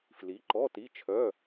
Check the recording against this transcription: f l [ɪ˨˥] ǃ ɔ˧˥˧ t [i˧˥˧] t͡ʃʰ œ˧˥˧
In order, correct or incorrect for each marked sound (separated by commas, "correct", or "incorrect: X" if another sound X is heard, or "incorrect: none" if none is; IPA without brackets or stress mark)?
incorrect: i˨˥, correct